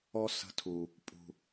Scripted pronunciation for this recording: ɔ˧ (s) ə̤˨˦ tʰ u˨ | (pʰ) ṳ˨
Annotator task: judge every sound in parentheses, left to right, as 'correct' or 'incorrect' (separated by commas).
correct, incorrect